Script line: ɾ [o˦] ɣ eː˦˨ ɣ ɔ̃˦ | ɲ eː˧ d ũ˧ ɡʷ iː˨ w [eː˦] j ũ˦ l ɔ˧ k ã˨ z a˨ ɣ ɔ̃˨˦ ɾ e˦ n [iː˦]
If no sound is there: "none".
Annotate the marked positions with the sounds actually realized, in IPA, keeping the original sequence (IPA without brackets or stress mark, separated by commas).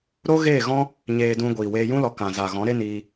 o˦, eː˧, iː˧